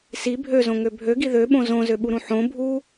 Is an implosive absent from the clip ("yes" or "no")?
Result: no